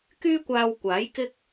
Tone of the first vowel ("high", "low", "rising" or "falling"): high